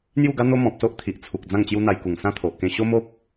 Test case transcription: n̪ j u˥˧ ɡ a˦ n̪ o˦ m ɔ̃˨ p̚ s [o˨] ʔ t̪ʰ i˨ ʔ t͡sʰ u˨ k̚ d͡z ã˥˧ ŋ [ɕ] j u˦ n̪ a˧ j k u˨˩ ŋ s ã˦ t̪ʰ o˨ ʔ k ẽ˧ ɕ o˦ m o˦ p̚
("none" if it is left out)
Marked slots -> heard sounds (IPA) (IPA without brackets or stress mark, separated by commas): o˦, t͡ɕ